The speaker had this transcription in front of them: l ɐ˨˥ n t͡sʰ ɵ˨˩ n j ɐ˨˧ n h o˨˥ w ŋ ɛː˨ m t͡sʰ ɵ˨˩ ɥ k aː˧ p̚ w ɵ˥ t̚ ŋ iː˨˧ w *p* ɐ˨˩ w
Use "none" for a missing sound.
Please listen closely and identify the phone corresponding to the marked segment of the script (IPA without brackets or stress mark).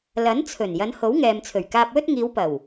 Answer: p